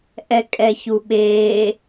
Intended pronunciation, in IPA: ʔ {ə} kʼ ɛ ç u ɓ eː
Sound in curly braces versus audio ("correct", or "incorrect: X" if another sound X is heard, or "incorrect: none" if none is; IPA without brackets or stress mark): incorrect: ɛ